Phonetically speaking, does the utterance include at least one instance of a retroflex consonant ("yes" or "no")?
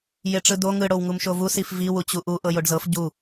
yes